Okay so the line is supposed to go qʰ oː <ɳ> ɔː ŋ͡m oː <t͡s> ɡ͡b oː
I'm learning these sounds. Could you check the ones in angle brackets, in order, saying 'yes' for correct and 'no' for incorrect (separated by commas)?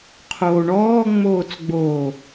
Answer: yes, yes